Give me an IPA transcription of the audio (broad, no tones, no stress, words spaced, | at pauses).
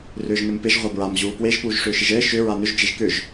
rʏːʒnɘmpɪʒ ʁʷabɹam ʑuːpweʒ puːʒʂʏːʃɪʒɘː ʃʏ ɹanʏʒ d͡ʒeʒkʏʒ